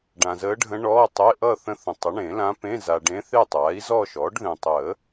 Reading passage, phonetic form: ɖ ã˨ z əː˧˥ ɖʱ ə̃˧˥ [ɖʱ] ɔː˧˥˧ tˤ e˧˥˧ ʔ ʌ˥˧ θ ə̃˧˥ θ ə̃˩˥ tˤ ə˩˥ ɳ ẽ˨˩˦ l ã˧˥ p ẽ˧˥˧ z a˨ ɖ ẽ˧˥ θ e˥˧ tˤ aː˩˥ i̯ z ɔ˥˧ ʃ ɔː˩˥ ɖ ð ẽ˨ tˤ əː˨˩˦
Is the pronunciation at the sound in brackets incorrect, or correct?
incorrect